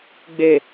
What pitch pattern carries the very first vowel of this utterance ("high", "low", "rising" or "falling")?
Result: low